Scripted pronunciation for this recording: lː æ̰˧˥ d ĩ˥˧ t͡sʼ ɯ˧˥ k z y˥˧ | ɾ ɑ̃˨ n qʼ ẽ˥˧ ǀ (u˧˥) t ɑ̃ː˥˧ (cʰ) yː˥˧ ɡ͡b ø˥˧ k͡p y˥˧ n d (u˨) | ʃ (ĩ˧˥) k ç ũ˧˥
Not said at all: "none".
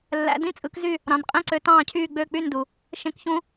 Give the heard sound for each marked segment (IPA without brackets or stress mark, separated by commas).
ø˧˥, cʰ, u˨, ẽ˧˥